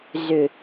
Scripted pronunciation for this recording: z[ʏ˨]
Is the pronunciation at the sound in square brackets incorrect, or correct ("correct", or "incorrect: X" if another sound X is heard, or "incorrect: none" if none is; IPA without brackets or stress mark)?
correct